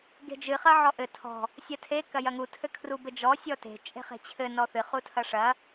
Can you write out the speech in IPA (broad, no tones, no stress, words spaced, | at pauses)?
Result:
ɡe̤d͡ʒɨ χɐʕɔʔɘ tʰɔ̤ | sʲɐtʰe kɐjɐŋu tʰɘkʰrubɘd͡ʒɔ sʲɔte̤ t͡ʃʼe̤χe̤t͡ɕʰɘ nɔθɨ χutʰɐʂɐ